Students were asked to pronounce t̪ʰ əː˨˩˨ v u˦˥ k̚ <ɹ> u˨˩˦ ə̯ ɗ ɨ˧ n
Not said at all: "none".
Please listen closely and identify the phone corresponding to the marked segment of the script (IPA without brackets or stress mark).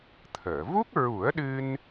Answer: ɹ